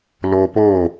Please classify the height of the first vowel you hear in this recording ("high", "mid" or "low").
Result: mid